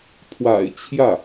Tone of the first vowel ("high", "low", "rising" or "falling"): low